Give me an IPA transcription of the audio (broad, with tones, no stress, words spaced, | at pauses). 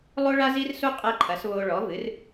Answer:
lˠo˦ɭa˦zi˦rsu˦ qʼɛ˦ǃʰɐ˩˥s βo˦ ɭɔ˩˥vɨ˩˥r